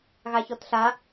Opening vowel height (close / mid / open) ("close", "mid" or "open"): open